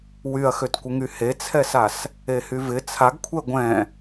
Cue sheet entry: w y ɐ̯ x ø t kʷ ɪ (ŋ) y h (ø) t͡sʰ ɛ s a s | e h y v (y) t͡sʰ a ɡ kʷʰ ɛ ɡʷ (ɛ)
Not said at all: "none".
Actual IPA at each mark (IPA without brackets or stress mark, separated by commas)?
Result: ŋ, e, ɪ, ɛ̃